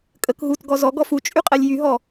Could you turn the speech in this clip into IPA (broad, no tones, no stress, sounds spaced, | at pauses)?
kʼ ə k ɦ u t ɡ ɔ z ɔ ɡ ɔ f u t͡ʃʼ y qʼ ɛ lʲ j y ɦ ɔ